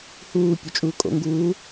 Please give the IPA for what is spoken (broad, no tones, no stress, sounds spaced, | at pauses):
h uː pʲ o t͡ʃʼ uː kʼ o̰ ŋ ɡ uː